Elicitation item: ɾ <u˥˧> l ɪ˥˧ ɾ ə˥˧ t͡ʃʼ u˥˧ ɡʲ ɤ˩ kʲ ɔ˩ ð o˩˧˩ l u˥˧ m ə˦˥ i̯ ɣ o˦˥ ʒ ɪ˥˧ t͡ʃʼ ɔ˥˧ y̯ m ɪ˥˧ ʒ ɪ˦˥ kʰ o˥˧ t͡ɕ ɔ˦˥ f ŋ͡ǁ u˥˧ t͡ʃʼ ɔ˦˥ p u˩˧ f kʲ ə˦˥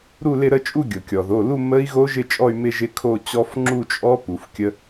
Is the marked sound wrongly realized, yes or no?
no